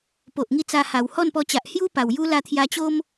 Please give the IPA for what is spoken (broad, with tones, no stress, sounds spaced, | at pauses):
p o˨ ʔ ŋ i˥˧ t͡s a˧ h a˨˩ w h ɔ˥˧ n p ɔ˧ t͡ɕ a˨ ʔ h j u˦ p a˨˩ w j u˦ l a˥˧ t̪ʰ j a˧ t͡ɕ o˦ m